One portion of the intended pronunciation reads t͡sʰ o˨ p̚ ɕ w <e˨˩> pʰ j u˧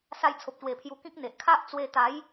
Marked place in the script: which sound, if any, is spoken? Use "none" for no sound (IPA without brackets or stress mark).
e˨˩